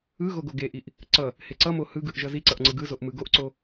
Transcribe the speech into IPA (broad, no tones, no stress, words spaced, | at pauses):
ɯ ɣoɡoɡeʔiʔ | ǀʌ | heǀʌmo hɯɡɯʔ ʒʌziǀʌʔ ŋ͡ǀɯɡɯzoʔ mɯɡoʔǀo